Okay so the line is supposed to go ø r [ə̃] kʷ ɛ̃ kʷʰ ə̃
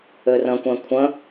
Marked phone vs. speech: correct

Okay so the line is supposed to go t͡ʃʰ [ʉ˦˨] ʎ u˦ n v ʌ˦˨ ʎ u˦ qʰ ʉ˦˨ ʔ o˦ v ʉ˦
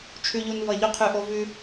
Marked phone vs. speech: incorrect: ʉ˦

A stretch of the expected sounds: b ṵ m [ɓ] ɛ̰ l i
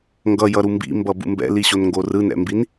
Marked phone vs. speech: incorrect: b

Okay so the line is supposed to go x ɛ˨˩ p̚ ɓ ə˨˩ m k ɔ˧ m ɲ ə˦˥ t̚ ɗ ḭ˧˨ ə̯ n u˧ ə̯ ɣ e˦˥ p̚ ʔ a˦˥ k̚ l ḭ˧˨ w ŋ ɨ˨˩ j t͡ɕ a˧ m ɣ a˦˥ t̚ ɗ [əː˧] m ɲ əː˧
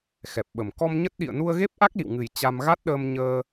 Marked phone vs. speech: correct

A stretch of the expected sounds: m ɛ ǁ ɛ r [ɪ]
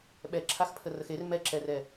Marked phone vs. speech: incorrect: ɛ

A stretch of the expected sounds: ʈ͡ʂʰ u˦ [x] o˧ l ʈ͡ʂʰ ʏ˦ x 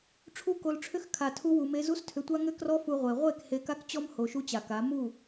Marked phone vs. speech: incorrect: k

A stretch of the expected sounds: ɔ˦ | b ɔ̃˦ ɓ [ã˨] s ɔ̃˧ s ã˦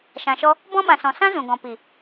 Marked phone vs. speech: incorrect: ã˧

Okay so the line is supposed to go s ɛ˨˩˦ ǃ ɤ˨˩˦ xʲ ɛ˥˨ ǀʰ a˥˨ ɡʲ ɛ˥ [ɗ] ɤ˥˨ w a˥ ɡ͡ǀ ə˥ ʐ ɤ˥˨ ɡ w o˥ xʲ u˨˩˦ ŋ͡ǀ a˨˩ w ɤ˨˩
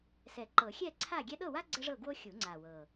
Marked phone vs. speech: correct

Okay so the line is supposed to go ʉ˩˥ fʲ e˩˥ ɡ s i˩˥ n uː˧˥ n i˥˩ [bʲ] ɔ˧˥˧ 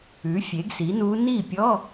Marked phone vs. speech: incorrect: pʲ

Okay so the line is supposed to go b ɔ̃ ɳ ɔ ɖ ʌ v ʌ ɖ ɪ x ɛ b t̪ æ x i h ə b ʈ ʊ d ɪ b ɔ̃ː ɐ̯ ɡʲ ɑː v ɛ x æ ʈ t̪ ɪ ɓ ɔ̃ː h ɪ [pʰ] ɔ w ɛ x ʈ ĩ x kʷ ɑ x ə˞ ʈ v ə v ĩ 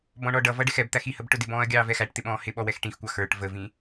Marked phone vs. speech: incorrect: ɓ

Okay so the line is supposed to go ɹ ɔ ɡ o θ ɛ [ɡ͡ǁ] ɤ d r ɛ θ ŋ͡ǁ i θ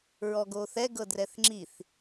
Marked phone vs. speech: incorrect: ɡ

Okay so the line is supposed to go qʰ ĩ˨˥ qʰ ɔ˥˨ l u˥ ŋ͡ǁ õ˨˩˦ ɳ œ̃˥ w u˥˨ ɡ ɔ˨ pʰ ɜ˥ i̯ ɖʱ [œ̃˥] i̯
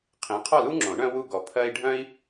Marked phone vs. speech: correct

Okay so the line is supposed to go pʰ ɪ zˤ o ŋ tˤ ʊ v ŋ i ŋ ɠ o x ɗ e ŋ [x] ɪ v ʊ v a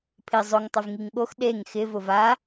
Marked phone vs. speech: correct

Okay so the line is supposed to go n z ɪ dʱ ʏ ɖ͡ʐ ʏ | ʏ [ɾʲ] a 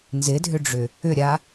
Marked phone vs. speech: correct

